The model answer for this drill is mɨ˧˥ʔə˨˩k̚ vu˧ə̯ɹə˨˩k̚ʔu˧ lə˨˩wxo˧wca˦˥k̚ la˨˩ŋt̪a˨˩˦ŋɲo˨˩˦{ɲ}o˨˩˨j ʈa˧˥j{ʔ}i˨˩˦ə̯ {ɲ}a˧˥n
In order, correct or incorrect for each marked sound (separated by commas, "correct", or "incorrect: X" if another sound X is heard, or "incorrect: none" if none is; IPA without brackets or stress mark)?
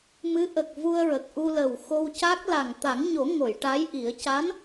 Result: incorrect: ŋ, correct, incorrect: c